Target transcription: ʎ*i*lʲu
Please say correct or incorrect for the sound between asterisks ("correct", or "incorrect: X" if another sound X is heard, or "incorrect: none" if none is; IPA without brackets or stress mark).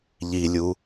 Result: correct